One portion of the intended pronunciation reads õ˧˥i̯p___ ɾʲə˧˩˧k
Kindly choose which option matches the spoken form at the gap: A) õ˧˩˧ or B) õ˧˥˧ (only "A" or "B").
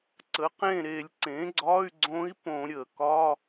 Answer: A